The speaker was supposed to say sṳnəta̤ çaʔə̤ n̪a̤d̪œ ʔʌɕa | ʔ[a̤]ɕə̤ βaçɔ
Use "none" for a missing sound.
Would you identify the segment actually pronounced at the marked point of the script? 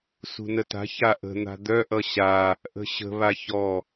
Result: ə̤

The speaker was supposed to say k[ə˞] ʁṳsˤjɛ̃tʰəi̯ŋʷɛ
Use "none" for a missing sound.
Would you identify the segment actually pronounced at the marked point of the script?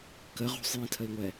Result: ə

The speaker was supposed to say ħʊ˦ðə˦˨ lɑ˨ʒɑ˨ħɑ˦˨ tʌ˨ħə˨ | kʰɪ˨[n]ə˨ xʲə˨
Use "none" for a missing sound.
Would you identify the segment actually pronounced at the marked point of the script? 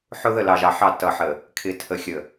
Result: tʰ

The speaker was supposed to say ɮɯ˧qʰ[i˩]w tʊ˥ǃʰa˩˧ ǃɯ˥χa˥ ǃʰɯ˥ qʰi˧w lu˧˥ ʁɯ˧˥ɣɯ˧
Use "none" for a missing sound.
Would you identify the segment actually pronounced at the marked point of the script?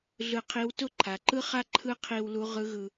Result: i˧˥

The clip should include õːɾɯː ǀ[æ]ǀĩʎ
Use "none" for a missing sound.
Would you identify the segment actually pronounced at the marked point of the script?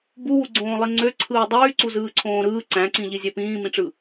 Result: æ̃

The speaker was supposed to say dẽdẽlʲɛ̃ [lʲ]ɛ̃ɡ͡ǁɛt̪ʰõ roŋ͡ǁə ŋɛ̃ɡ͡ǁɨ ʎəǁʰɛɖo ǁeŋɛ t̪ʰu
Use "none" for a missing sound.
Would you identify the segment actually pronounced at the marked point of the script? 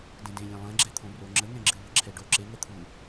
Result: lˠ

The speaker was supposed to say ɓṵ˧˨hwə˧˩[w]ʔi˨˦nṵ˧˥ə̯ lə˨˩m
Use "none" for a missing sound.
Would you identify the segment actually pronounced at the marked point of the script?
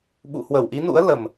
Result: w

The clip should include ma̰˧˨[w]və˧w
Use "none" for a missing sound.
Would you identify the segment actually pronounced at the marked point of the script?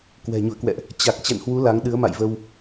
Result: j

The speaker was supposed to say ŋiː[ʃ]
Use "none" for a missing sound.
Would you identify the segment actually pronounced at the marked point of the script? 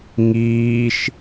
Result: ʃ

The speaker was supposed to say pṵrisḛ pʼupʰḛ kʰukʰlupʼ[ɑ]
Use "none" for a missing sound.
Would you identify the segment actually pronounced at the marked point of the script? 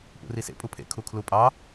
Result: ɑ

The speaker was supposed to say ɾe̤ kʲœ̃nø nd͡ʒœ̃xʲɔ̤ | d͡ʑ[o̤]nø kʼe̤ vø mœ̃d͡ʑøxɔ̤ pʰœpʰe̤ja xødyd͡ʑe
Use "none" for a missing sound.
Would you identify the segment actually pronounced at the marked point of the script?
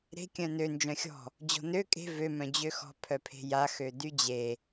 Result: ɔ̤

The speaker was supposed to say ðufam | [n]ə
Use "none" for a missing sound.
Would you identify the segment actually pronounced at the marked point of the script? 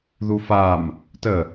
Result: t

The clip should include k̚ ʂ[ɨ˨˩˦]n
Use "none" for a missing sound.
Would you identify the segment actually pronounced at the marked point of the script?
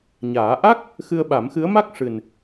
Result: ɨ˨˩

